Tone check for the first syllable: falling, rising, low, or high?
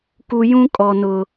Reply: low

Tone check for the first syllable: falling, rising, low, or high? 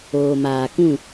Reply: low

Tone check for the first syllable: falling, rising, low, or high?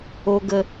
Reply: low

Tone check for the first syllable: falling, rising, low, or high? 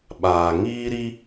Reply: low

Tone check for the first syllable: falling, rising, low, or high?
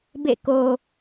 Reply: falling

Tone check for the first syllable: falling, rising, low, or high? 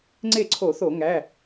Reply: falling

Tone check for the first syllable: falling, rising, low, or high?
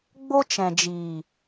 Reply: high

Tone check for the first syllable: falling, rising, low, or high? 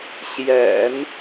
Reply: low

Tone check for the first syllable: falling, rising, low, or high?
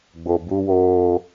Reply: low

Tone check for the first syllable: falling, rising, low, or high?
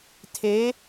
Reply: rising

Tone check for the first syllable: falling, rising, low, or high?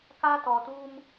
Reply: high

